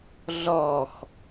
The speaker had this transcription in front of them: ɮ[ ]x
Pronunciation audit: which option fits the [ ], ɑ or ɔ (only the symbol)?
ɔ